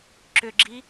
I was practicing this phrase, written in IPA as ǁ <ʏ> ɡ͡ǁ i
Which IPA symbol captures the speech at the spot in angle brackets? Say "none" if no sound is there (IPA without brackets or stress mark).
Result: ʏ